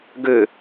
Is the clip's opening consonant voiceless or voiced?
voiced